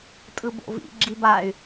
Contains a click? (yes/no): yes